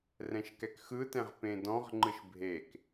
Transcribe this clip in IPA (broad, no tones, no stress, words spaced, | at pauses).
rɛ̃ʃkɛkxɯtɛ̃ʁ pẽdɔ̃ʁŋ͡ǃɯʃ bʱek